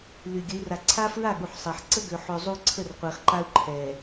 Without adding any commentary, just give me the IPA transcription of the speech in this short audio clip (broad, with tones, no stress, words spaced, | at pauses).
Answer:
ly˨ɡʲə˨˦i̯ ra˨ǀʰa˦fɹa˦˨ ɠu˨ħsˤe˨ħ ǀə˦ɡø˨ħø˨ zˤu˦ǀʰə˦˨rqʷe˨χǃa˦u̯ ǃʰɛ˨